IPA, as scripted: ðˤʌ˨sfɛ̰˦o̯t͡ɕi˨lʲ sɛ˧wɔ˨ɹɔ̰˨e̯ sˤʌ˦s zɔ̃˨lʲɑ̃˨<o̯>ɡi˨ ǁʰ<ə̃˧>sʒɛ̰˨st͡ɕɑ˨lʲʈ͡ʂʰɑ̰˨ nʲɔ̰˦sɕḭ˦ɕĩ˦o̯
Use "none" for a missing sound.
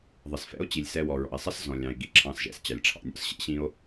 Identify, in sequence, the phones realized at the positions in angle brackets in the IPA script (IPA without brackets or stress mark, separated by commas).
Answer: e̯, ɑ̃˧